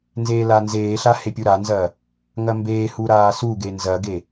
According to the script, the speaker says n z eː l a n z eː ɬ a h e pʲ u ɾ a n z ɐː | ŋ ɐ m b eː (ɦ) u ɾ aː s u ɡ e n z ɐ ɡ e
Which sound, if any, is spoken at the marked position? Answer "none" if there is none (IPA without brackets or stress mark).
h